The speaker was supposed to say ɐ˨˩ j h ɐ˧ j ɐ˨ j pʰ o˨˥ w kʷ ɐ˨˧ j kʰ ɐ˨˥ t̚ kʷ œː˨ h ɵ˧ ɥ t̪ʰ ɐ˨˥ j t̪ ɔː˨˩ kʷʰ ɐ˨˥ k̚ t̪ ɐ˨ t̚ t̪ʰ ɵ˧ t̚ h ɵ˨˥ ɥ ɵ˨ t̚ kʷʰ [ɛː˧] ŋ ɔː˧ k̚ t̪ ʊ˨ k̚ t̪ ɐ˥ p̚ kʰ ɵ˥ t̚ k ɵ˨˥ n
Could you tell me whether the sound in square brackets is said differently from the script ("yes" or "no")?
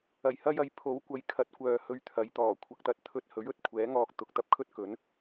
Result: yes